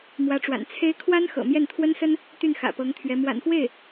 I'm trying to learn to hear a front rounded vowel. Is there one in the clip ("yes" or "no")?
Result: yes